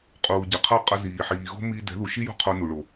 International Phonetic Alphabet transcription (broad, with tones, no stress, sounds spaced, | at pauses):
qʼ uː˩ ɟ ɛ˩ qʰ ʌ˥˩ qʼ a˧ z iː˩ ħ iː˩ ɣ o̤˥ m iː˧ d ɛ̤˩˥ ð u˩ ʃ i˥ j o̤˥ qʰ o˧ n u˩ ɭ o˩